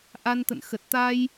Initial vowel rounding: unrounded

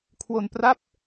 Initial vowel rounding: rounded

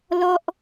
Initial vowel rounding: rounded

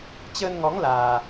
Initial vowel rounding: unrounded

